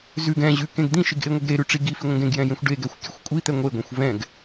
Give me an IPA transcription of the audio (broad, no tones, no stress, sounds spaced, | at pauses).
z ʉ ɡ ɛ̃ ʑ ʉ k ẽ ɡ d̪ ĩ ʃ i ɡ ʔ e ŋʷ e ɡ ɾ e ɾ ʉ ʈ͡ʂ i ɡ i f i ŋʷ ẽ ɡ ẽ ɡ j ɛ̃ j ẽ xʷ ɖ e ɡ ɛ xʷ kʲ ʉ xʷ kʷʼ i t̪ ɛ ŋʷ e ɡʷ ẽ xʷ v ɛ̃ ɡ